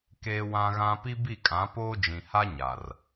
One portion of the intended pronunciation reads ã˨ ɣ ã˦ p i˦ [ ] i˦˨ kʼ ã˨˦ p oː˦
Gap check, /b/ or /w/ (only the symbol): b